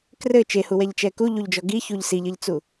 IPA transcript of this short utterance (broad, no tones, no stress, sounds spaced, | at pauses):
k r ɘ t͡ʃ e h u w ɛ ʎ t͡ʃ ɛ k u ʎ u ʎ d͡ʒ ɔ ɡ i ç u ʎ s i ʎ ɘ ʎ t͡s u